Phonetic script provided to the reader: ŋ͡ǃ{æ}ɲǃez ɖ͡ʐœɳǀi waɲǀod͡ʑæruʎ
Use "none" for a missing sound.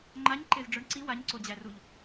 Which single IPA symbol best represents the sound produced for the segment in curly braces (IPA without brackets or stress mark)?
a